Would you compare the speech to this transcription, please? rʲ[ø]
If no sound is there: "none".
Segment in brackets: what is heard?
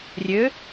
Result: ø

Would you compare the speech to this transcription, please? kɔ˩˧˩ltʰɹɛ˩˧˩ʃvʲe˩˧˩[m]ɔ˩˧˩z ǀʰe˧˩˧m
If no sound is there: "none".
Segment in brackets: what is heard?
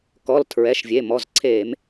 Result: m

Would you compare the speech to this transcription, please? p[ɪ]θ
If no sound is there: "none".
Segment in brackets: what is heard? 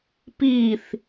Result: i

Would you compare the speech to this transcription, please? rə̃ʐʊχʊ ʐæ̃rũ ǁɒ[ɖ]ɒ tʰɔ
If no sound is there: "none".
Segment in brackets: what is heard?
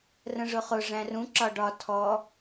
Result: ɖ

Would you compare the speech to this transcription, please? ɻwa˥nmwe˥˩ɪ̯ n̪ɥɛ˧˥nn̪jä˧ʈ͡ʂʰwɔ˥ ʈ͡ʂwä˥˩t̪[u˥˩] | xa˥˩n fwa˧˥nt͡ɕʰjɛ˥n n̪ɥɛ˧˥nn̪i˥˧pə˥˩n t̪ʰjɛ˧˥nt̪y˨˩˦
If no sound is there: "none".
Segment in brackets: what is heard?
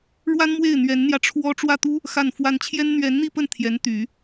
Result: u˥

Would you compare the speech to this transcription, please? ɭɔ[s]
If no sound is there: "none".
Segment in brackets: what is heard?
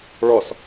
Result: s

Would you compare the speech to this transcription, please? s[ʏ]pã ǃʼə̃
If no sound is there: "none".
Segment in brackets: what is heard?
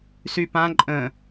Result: y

